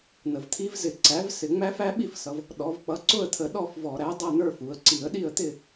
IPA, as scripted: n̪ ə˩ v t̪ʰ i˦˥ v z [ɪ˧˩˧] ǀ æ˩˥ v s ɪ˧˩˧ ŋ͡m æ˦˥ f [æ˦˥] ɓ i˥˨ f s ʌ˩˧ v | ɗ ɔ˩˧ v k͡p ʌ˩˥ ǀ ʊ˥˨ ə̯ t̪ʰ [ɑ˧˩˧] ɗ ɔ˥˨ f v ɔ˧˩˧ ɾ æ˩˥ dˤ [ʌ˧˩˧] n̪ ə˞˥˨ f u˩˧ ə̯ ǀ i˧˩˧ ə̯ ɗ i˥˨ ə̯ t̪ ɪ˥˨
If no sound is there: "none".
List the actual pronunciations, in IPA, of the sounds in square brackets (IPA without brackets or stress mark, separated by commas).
ɪ˧˩˧, æ˦˥, ə˧˩˧, ʌ˥˨